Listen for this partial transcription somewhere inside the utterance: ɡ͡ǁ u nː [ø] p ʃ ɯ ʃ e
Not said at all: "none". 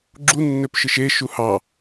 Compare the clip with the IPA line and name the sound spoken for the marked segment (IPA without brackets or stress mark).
ø